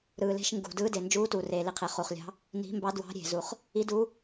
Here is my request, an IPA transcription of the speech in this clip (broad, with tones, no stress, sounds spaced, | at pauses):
ɾ ɯː˨˩ l e̤˧˥ ʃ ŋ ɡ ṳ˨˩ d ɯː˧˥ d e˨˩ n d͡ʒ uː˧˥ t uː˨˩ r eː˨˩ l i˨˩ qʰ e˨˩ χ u˨˩ χ lʲ ɑ̤˧˥ | n i̤˧˥ m b ɑ˧˥ d w ɑ̤˧˥ ɾʲ e̤˨˩ z u˨˩ χ | i˧˥ d uː˧˥